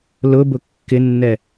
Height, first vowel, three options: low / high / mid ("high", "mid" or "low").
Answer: high